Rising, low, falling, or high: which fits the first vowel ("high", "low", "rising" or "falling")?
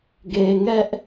low